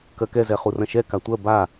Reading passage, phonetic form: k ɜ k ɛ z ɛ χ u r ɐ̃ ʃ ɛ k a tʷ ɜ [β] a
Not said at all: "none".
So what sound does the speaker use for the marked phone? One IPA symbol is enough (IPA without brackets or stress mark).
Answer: b